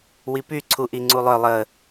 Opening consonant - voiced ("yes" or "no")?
yes